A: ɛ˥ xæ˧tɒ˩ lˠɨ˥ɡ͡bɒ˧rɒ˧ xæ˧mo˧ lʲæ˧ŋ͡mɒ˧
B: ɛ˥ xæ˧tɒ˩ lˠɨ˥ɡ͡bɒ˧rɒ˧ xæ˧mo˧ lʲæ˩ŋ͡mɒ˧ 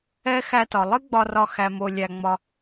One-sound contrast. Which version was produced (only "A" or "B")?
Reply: A